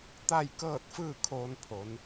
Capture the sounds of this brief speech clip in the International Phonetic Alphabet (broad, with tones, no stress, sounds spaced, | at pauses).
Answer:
t̪ a˥˨ j k ɤː˥˨ t̚ f ɯː˥˨ kʰ oː˧ n pʰ o˩˧ n